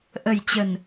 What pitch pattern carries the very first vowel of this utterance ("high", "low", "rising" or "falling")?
low